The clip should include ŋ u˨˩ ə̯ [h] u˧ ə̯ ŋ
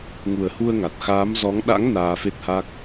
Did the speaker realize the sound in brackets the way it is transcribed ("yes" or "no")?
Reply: yes